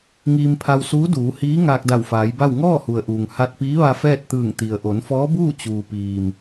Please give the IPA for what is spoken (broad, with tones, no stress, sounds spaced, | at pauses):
ŋ iː˧ m pʰ a˧ w s uː˧˥ d uː˩˧ h iː˧˥ ŋ aː˧ k̚ d a˧˩ w f aː˩˧ j b a˥˨ w ŋ ɔː˥˨ h u˩ ə̯ ʔ uː˩ ŋ h a˧ t̚ p iː˧˥ ʋ a˧ f ɛː˥˨ t̚ t̪ ɯː˧˩ ŋ t̪ i˩ ə̯ ʔ o˩˧ n f ɔː˧˥ b uː˥˨ t͡ɕ uː˩ p iː˩ m